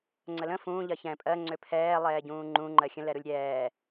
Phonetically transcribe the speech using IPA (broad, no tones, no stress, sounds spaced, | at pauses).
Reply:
ŋ͡ǀ ə l ə̃ f ũː ʎ ɜ ç ɛ̃ pʼ ɜ ŋ͡ǀ ʏ pʰ ɛː lˠ ɛː ɟ ũː ŋ͡ǃ ũ ŋ͡ǃ ɜ xʲ ə̃ l ɛ ɾ u lʲ ɾʲ ɛː